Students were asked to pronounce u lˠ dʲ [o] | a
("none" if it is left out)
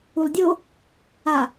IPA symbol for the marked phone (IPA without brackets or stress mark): o